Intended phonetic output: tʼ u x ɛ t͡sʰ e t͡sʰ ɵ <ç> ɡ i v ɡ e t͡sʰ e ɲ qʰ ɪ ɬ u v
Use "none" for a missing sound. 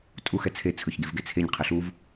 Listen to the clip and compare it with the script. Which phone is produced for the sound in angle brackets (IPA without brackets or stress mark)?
ç